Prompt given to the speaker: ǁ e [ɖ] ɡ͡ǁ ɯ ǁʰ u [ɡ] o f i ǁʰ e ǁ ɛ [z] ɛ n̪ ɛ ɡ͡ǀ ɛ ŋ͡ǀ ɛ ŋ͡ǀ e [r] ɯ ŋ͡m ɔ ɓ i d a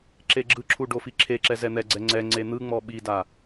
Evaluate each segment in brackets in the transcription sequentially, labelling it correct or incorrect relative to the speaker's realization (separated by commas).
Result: incorrect, incorrect, correct, incorrect